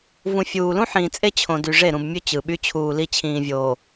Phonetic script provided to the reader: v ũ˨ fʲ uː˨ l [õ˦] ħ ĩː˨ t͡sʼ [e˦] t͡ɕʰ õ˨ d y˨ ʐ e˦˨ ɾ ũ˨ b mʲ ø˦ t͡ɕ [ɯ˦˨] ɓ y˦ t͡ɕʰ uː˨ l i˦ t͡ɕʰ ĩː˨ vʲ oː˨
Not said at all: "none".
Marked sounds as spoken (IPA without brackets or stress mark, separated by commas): ũ˦, e˦, ɯ˨